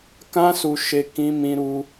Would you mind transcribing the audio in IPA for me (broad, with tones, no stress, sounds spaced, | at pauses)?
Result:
k ã˦ s u˧ ʃ e˧ k ĩ˦ m ĩ˦ ɾ u˦